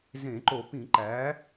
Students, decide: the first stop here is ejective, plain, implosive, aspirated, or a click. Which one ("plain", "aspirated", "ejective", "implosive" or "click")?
click